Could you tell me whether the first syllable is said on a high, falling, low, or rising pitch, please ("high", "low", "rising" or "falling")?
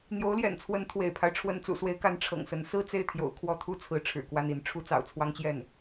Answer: rising